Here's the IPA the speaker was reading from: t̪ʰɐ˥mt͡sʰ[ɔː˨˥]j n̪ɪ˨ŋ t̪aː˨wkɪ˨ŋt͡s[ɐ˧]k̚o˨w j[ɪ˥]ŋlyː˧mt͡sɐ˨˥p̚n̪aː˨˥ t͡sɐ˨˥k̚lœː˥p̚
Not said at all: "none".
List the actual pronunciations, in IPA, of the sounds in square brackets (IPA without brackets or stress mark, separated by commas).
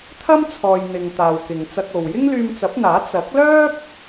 ɔː˨, ɐ˧, ɪ˥